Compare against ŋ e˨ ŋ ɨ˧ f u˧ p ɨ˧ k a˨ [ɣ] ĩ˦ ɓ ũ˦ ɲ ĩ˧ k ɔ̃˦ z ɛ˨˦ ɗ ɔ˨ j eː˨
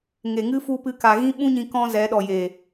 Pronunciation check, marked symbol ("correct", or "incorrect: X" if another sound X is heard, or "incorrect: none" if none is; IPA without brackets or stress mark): correct